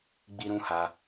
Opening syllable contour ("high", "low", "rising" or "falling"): high